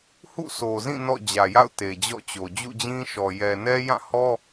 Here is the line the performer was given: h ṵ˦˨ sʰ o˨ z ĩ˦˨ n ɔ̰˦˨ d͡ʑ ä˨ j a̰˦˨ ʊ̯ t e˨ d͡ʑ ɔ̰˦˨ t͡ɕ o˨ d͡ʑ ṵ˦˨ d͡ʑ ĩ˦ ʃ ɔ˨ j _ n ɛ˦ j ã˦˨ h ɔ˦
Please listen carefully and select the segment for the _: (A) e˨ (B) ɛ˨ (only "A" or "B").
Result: B